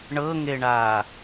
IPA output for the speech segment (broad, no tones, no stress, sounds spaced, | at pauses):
ɳ ɤ ŋ e ɳ aː